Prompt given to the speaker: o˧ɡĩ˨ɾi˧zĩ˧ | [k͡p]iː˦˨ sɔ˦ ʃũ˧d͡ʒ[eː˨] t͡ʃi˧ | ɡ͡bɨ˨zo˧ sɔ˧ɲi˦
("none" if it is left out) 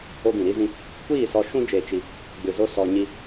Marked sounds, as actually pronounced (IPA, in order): kʷ, eː˨

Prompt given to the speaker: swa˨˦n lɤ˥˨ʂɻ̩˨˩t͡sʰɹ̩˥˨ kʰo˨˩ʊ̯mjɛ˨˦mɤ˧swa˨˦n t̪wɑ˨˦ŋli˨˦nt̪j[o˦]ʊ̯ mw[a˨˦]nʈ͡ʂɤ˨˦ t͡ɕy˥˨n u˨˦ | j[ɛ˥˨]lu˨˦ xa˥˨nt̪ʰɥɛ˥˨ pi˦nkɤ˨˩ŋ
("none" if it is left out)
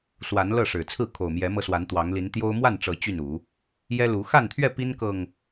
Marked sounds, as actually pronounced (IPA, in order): o˦, a˥˨, ɛ˦

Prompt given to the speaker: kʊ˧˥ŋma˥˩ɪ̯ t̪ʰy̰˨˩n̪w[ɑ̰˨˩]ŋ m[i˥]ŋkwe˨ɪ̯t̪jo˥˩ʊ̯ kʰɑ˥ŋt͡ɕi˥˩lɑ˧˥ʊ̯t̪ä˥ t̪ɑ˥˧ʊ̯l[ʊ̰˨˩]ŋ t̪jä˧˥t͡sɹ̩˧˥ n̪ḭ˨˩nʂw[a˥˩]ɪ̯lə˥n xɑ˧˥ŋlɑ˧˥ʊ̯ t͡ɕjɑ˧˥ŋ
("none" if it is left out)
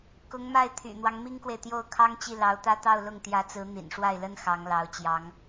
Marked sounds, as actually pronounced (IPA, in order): ɑ˦, i˥, ʊ˥˩, a˥˩

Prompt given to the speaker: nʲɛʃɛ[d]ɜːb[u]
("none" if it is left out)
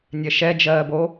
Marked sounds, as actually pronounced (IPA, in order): d͡ʒ, o

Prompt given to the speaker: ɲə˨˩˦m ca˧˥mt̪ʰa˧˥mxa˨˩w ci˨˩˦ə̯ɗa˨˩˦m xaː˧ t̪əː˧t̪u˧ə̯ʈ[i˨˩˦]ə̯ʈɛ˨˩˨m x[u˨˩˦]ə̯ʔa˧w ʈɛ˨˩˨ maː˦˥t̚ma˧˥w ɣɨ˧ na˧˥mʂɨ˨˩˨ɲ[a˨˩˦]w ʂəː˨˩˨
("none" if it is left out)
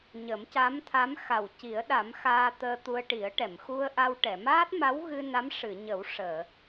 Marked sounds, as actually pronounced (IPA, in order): i˨˩˦, u˧, ə˨˩˦

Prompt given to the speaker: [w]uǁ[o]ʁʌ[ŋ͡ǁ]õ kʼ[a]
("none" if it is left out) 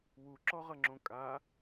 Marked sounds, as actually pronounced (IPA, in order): w, ɔ, ŋ͡ǁ, a

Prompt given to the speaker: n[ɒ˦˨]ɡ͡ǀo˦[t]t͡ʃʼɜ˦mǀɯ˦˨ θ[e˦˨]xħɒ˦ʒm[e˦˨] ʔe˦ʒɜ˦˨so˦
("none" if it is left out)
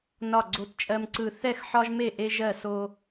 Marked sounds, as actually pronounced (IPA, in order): ɒ˦˨, t, ɛ˦˨, e˦˨

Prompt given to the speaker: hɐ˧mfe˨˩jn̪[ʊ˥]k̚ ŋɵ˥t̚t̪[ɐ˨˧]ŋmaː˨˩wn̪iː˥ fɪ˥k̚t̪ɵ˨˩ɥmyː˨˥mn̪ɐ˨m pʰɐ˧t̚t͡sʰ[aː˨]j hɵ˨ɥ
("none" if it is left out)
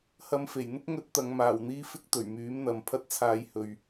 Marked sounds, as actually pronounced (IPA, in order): ʊ˥, ɐ˨˧, aː˨

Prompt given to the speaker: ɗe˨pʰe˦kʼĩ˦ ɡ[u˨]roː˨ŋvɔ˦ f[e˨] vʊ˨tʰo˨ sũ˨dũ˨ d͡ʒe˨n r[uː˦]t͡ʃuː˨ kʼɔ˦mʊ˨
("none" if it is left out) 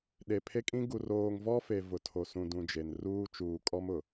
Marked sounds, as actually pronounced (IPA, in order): u˨, e˨, uː˦

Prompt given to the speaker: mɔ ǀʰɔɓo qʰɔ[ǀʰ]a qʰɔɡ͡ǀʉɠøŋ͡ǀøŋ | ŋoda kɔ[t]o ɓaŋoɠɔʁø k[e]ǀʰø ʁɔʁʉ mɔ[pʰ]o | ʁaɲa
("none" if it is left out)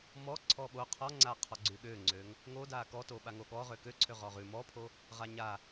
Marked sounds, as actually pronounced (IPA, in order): ŋ͡ǀ, t, ø, pʰ

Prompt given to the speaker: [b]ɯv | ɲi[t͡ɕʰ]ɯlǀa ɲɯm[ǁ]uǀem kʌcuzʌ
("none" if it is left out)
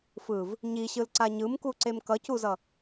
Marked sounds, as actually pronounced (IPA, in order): f, ɕ, k

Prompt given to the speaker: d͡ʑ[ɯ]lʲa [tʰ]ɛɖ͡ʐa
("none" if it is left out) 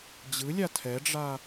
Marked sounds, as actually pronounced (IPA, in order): ɯ, tʰ

